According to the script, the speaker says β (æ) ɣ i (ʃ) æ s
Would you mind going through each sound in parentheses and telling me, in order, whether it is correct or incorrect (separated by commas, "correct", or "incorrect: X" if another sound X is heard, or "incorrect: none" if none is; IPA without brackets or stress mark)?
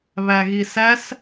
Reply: correct, incorrect: s